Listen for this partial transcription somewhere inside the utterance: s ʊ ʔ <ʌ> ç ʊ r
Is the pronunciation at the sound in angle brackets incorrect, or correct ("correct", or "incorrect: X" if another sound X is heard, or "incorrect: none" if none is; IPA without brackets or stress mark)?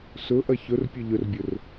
correct